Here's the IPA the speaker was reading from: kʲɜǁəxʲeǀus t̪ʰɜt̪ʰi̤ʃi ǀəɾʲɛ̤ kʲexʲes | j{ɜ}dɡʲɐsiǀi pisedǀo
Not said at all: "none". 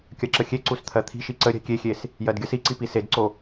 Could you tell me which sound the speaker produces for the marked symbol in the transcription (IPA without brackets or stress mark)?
ɜ